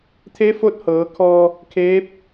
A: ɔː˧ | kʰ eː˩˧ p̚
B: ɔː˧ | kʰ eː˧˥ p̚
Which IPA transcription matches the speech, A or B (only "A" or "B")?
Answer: B